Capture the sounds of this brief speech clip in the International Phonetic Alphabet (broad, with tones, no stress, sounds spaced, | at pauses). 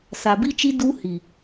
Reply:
s a˨ b i˦ t͡ʃ i˦ d u˦ h i˨